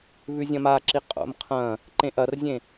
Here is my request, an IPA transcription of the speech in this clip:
βʉzʲɐ̃maǁi qʼo̰mqʰɐ̃ | ǃẽʔɐrzʲẽ

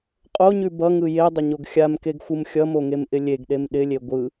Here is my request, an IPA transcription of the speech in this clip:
qʼoɲʉ bʌŋɯ jedˤəɲoɡ xʲamkeɡxʷɯm xʲʌmoŋemʔɪ lʲeɡɗem ɗɪlʲe ɡʷɯ

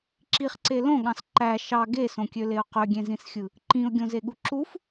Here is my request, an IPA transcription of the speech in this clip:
ǁiχǀe lõɠɑ̃s ǃæ ʃɑ ɡesõkʲøleʊ̯ qøɡʲẽzĩsxʲɯ | ǃĩʊ̯ɡʲõzeɠu ǁuf

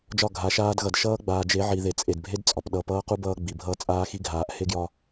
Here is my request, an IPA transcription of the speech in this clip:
d͡ʒɒ˦˨ ɡʱa˨˦ʃaː˦dɣʌ˨d ʃʌː˦ɡ͡baː˨d͡ʒe˨˦ ʕi˨ðe˨t͡sʼe˨dbʱe˦d t͡sʼɒ˨pɗʌː˦p ʌː˦qu˦ bʌː˦ɡ͡bi˨ bʱʌː˦ t͡sʼaː˦xi˦ɡʱaː˨ʔ he˦ɡjɒ˦

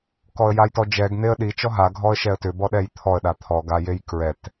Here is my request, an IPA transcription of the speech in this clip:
kɔə̯jajtɔd͡ʒɛɡ n̪eə̯ɗi t͡ʃɔɦa ɡʱɔə̯ʃɛə̯tʏ bɔɗɛjt̪ʰɔə̯ ɗat̪ʰɔ ɡajejkɹɛt

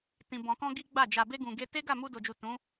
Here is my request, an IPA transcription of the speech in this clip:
tĩ˨bɔ̃˨kɔ̃˧ ɡi˦ɡ͡ba˦˨ d͡ʒa˨be˧ɡũ˨ ɡe˧ te˦ɡa˦˨ mu˧do˨d͡ʒu˨ tũ˨˦

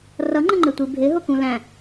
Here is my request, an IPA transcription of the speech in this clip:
rʌŋ͡ǃəŋ͡ǃɪtʷi bʱɪɦʊkũ læ̃

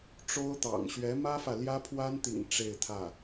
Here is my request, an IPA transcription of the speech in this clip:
ʈ͡ʂo˥ʊ̯t̪ɑ̰˨˩ŋ ɕɥɛ˧˥mä˥fä˨ ljä˥pʰwa˥nt̪ḭ˨˩ŋ ʈ͡ʂe˥˧ɪ̯t̪ʰä˥˩

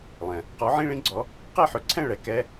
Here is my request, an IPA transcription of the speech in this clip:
lˠɛ̃˩ | qɔ˨˥ʕĩ˧˥˧ɭĩ˥ɡ͡ǀɔ˨˥ | qɛ˥˨ħɵ˨˥ǀʰɛ̃˥˨ ɭɛ˧˩˧kɛ˧˥˧

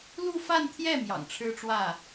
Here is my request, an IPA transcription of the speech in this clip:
lu˥˧fa˥˧nt̪ʰjɛ˥˩ mjɑ̰˨˩ŋʈ͡ʂʰɻ̩˥ʈ͡ʂwä˥˩

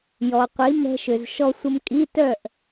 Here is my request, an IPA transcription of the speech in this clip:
jɔ˩qʷi˩˧ mɛ̤˧ʃø˩zʃɔ˧sʷə˧m kʼi˧˥˧tœ˥˨ʔ

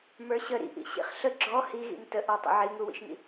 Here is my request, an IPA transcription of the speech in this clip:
mə˞ɕə ɾḭʔḭ ɕḭχɬə ɡ͡ǁɔ hiɣḭm təʔɔtˤə̰ ʕiŋuwḭʃŋḭ

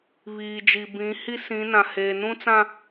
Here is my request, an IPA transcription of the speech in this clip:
βiː˨d͡ʒi˨ bĩ˨˦hi˦ sĩ˨˦nã˨heː˨ nũ˦t͡sã˦

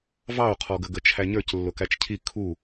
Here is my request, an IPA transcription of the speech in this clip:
vɑo̯qʰɔɡə ɡət͡ʃʰæɲə˞c lːʊkæt͡ʃcʰi kʰu

